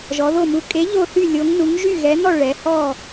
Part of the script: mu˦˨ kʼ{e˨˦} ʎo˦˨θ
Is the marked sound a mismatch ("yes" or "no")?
no